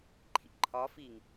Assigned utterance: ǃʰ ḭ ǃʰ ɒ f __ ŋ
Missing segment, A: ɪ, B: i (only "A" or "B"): B